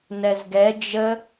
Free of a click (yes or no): yes